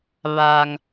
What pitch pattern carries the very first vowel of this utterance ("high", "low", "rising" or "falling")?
low